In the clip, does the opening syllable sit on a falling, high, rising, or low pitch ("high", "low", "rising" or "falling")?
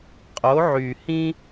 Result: rising